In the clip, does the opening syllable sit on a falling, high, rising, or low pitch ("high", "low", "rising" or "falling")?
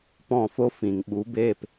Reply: falling